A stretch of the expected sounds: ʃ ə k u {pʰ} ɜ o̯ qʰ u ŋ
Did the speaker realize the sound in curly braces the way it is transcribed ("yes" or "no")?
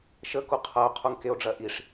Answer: no